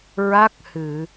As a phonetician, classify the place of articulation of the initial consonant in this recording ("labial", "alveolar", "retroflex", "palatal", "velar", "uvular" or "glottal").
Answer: alveolar